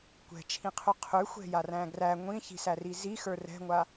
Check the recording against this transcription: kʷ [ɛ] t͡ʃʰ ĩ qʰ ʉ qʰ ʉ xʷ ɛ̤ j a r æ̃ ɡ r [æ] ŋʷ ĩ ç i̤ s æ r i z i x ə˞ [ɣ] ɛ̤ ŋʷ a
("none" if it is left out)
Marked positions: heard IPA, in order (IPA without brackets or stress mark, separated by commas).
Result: ɛ̤, æ, r